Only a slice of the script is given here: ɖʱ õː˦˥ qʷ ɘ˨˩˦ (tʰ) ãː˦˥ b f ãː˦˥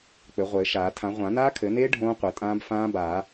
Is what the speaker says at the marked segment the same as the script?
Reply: no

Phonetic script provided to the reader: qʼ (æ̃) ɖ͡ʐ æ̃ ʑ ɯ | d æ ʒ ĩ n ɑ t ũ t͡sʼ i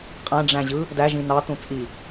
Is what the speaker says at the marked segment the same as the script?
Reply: yes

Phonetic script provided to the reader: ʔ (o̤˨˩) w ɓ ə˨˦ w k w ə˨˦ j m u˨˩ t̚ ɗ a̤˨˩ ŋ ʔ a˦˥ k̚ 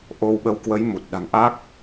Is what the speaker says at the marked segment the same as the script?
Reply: no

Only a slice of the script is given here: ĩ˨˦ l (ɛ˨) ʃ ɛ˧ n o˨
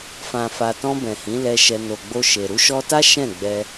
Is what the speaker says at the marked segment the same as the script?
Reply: no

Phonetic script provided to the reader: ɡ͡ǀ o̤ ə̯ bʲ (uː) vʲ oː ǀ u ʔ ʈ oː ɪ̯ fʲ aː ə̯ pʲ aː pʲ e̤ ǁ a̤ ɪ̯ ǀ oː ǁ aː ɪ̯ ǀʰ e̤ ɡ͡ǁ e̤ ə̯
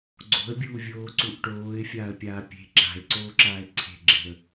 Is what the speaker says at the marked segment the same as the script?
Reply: yes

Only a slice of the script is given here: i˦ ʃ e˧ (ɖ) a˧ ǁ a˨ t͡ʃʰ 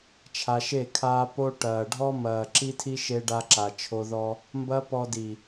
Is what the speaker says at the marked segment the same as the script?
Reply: yes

